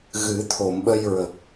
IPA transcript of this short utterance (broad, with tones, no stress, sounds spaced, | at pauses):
ɣ ɨ˨˩˦ t̪ʰ o˨˩˨ m ɓ ə˧ j ɹ ə˨˩ k̚